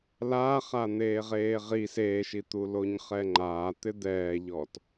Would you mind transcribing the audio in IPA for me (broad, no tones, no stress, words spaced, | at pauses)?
laːχan̪eː ʁeːʁi seːʃit̪uloɲ χɛŋ͡ǃaːt̪ɪ d̪ɛːʎɔt